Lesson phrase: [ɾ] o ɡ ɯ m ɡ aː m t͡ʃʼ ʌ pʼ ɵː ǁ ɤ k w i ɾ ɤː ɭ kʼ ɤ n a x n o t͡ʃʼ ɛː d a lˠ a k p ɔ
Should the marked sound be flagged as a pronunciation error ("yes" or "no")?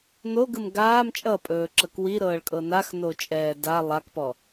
yes